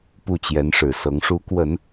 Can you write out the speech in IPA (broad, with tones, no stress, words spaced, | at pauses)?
pu˥˩t͡ɕjɛ˧˥nʂɻ̩˨˩sɤ˧˥ŋ ʂu˧˥kwə˨˩˦n